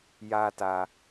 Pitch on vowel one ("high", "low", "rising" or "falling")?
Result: high